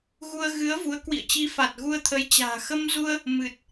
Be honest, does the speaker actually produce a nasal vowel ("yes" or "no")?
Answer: no